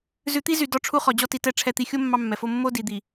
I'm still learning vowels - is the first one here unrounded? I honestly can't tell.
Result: no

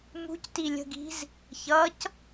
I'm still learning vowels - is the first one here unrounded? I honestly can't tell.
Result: no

